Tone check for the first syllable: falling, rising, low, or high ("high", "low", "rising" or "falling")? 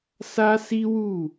high